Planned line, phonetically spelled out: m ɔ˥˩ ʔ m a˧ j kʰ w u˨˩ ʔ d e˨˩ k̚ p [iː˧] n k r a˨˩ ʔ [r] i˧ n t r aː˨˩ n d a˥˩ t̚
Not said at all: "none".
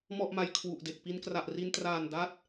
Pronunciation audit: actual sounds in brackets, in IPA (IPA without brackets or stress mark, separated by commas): i˧, r